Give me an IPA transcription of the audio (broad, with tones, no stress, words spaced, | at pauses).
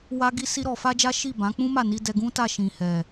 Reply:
wa˦ɡi˦ si˦ɾɔ˧ fa˦d͡ʒa˦ ʃi˦˨ bã˨˦k͡pũ˦ma˦˨ ni˧dɛ˧ɡũ˦ta˦˨ ʃĩ˨hɛ˨